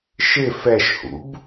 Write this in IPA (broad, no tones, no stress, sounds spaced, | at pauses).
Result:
ʃ ɪ f ɛ ʃ h ṵ b